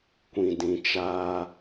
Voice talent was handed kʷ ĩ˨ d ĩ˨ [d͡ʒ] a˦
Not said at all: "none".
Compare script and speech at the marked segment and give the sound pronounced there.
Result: t͡ʃ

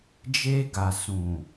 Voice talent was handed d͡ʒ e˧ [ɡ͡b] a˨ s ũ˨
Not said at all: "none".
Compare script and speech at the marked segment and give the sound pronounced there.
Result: ɡ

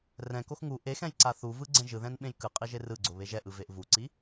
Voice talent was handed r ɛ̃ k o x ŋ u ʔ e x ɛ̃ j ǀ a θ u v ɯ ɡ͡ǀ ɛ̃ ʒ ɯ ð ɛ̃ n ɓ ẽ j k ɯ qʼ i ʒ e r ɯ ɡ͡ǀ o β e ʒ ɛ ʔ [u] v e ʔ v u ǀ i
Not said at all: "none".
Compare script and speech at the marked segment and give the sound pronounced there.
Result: ɯ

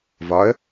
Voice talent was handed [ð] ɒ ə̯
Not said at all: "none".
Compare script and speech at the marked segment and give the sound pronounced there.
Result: v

